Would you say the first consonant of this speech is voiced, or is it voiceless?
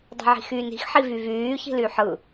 voiced